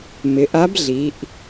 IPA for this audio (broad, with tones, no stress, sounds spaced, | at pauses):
m ɪ˩˧ ʔ a˧˥ b ɮ i˩˧ ʔ